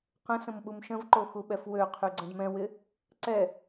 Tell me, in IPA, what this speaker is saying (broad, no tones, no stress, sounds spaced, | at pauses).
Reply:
q ə̃ s ə̃ m ɓ u m ʃ ə̃ v ǃ o x u ɓ ɛ f w ø qʰ y ɡ͡ǀ ə̃ d m ɛ̃ w ɪ | ǀ ɛ